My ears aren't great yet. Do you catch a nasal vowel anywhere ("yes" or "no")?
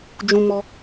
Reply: yes